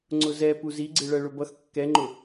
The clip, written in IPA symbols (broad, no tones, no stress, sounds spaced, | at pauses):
ŋ͡ǀ ʊ z ɛ p u z i ɡ͡ǀ ɪ ɭ ɜ ɭ ʊ b ʌ x kː ɛ ŋ͡ǃ ʊ